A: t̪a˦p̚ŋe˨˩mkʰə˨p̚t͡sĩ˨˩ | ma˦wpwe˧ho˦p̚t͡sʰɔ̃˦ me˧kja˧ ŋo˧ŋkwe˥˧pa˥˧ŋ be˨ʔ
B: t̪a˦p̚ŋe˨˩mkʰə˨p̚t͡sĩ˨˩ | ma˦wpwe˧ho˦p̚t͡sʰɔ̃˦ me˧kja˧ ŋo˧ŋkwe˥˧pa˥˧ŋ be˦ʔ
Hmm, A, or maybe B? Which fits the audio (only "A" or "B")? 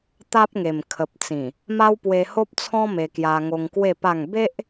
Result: B